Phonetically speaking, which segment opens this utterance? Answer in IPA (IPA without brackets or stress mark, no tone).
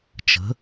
t͡ʃ